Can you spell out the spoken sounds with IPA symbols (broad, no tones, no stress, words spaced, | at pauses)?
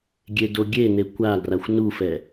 ɡʲedoɡʲene kʷaɡraxʷ nufɛ